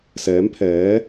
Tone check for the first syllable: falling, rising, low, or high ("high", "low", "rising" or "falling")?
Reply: rising